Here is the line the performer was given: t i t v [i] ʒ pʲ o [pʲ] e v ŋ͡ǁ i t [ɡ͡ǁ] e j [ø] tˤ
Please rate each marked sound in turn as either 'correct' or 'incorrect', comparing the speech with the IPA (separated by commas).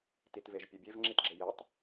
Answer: incorrect, incorrect, correct, incorrect